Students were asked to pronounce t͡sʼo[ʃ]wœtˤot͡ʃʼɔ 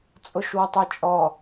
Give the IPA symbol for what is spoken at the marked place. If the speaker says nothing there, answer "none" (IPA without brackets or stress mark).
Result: ʃ